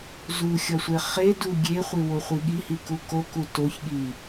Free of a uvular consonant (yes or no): no